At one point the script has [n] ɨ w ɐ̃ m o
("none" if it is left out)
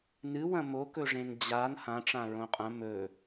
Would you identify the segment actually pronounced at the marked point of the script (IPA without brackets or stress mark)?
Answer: n